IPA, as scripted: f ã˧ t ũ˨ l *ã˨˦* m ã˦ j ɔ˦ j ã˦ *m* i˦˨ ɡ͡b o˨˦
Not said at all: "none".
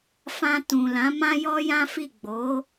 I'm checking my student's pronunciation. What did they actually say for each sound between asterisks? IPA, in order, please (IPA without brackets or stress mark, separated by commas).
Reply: ã˨˦, f